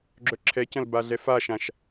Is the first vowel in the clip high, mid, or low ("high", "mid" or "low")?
mid